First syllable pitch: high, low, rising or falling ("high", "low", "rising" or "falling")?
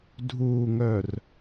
low